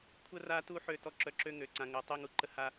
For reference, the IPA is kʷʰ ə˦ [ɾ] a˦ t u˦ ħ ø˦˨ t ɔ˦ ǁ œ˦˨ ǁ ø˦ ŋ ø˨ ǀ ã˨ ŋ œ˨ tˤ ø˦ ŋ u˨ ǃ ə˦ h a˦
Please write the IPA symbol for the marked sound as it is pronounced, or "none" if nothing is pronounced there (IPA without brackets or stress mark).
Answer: r